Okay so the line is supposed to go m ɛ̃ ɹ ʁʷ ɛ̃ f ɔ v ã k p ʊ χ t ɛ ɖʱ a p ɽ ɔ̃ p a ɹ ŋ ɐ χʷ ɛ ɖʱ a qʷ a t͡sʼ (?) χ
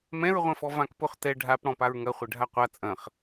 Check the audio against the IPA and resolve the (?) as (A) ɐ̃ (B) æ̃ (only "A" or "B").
A